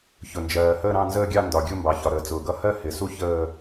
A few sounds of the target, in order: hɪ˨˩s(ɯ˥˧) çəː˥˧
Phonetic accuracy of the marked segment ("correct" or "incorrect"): incorrect